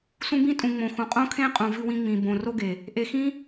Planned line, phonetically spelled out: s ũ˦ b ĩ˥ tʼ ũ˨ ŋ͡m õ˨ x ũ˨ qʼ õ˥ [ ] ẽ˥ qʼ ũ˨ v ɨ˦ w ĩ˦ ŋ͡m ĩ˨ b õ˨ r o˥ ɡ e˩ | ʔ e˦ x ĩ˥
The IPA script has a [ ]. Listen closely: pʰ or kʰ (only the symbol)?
kʰ